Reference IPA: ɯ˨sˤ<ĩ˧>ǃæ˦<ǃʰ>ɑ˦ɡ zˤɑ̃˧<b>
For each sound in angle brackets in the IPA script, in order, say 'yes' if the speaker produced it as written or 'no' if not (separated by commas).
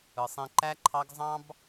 yes, yes, yes